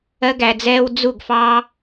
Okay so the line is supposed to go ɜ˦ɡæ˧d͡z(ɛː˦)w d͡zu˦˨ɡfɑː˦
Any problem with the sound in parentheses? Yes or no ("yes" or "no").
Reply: no